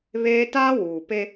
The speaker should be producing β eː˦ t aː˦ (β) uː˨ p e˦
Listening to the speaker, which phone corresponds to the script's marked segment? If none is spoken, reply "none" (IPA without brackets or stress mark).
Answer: w